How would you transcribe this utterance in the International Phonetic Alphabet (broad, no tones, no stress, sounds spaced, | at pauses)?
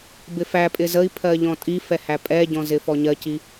b ɪ f æ pʼ ɪ z ə i̯ pʰ ɜ ʎ ɔ̃ tʼ i f ɛ h æ pʼ ɛ ɟ ɔ̃ z ɪ f ɔ ɲ ɜ c i